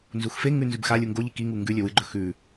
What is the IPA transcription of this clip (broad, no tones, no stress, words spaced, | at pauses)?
nzuxfeŋʉ nzʉbxalʲu ŋɡoʎi kiŋu ŋɡʉ lʲɵwɨɡ͡ǃɵ xʉ